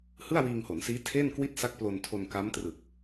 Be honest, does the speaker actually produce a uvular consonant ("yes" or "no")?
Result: no